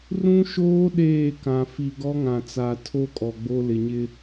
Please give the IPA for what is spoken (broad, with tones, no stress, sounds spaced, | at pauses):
r ũ˦ ʃ oː˦ ɗ eː˦˨ k ã˨ f i˨ ɡ ɔ˦ ŋ ã˨ t͡s a˨ tʰ o˦ kʼ ɔ˨ ɡ͡b o˦ l ɪ˨ ɲ ɪ˦